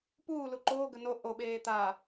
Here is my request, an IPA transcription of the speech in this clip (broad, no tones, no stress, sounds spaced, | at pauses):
p uː l u ǃ oː ɡ ə n o ʔ o ɓ eː t̪ a